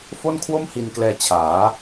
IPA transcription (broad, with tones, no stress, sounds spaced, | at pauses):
f o˥˩ n kʰ w o˥˩ m h i˧ n k l ɛː˧ t͡ɕʰ aː˩˦